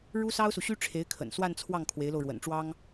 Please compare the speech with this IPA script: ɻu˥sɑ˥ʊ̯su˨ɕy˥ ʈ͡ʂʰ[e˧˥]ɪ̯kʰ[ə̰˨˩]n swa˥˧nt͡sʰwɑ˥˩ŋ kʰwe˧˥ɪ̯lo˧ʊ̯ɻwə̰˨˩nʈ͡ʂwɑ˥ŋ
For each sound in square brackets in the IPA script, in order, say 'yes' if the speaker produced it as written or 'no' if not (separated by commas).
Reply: yes, yes